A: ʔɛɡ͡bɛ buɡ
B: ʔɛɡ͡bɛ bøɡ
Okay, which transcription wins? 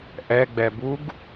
A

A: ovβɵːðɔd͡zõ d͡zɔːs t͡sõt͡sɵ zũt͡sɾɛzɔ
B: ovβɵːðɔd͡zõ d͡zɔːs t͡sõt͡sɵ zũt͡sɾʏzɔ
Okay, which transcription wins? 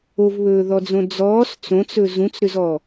B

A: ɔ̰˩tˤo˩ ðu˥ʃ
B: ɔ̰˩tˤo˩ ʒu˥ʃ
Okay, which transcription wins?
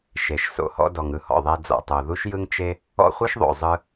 A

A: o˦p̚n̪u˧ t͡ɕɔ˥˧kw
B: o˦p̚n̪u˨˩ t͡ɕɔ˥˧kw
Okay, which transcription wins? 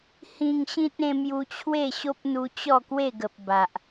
A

